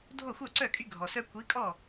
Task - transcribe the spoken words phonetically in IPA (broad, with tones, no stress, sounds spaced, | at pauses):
dʱ o˥˩ xʷ œ˥˩ ǀ œ˥˩ kʼ y˦ ɡʱ ɔ˩ s œ˦ kʷ i˨˥ kʼ ɔ˥˩